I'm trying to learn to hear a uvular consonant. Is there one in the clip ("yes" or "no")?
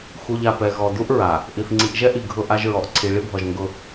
no